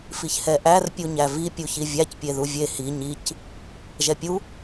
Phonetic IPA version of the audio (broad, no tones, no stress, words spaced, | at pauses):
fiçhɛʔær pʲuɲævi pʲuçivʲæc pʲeðuvʲe hi ɲic | ʒɛpʲu